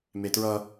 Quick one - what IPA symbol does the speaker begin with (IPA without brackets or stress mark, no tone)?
m